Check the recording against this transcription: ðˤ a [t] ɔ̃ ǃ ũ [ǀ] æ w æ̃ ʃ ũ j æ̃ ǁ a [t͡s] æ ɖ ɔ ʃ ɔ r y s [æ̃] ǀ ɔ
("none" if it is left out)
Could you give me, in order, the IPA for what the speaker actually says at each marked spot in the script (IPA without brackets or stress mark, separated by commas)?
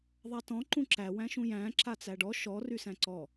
t, ǁ, t͡s, æ̃